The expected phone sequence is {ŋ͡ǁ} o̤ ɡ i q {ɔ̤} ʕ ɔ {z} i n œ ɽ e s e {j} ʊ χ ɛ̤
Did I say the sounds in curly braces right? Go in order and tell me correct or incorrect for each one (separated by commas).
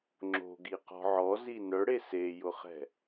correct, correct, correct, correct